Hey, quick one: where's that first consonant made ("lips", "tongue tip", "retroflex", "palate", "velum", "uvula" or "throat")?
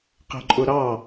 uvula